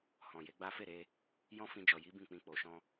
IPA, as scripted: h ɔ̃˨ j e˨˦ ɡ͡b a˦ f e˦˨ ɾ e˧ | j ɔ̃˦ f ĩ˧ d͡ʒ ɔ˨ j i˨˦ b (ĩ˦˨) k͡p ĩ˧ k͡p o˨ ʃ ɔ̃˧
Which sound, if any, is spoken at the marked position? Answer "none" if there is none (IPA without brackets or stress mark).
ĩ˦˨